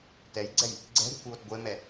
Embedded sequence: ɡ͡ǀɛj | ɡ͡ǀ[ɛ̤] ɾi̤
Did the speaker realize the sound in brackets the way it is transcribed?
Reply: yes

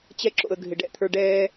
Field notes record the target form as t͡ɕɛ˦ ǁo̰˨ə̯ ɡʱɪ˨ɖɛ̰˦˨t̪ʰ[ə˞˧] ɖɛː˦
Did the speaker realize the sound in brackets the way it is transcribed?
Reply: yes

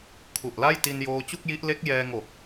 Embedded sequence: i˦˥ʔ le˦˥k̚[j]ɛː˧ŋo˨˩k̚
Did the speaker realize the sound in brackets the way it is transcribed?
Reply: yes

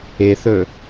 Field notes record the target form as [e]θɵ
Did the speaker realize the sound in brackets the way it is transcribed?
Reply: yes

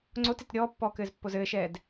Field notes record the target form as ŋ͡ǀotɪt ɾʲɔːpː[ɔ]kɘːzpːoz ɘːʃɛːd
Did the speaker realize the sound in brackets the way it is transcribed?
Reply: no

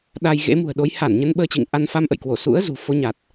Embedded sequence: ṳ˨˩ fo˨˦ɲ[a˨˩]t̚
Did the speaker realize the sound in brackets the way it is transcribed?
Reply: yes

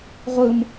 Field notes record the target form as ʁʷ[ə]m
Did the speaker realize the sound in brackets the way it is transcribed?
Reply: no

